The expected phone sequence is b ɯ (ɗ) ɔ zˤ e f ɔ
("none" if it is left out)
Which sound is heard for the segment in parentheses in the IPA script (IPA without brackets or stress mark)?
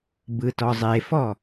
t